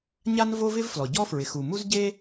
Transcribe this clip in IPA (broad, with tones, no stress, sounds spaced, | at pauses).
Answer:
ɲ a˥ n v o˥ v ɪ˥ v f l ɔ˩ ɟ ɔ˥ f ɹ ɪ˩ x u˩ m u˥ z ɟ e˥